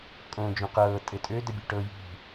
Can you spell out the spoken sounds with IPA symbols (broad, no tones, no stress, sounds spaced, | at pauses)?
kʼ õː d͡ʒ õ q ɤː tʼ ɘ tʼ ø d ə bʲ u ʈ ɤ j i̤